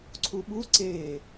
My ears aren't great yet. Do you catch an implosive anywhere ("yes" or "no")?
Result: yes